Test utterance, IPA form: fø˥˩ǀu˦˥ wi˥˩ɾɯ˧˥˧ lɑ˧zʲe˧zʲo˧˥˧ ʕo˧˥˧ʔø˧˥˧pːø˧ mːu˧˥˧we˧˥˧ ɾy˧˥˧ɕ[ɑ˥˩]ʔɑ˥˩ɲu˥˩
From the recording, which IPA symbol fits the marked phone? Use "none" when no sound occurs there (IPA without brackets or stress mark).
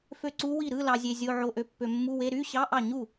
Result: ɑ˧˥˧